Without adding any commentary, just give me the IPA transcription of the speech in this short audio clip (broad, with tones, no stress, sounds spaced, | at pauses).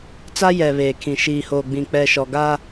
t͡s a˦ j ɛ˨ β eː˨ kʰ ĩ˨ ʃ iː˨ h oː˨ ɡ͡b ĩ˨ k͡p ɛ˨ ʃ ɔ˨ ɡ aː˦